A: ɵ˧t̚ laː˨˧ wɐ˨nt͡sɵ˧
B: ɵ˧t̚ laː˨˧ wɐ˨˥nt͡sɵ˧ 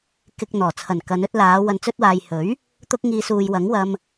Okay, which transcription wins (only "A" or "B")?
A